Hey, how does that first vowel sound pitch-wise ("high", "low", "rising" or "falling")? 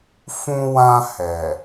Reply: high